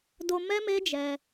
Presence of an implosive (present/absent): absent